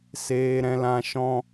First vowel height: mid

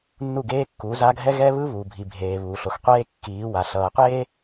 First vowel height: high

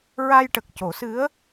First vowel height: low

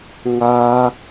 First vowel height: low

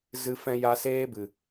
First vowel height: high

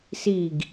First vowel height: high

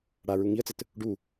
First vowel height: low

